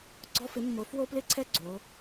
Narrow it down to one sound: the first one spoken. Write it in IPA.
ɡ͡ǀ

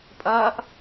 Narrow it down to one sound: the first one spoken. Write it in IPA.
pʼ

